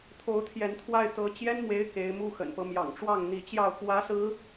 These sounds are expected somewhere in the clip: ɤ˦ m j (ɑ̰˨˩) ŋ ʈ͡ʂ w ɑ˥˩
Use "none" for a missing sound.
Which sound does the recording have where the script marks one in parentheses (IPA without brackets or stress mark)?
ɑ̰˨˩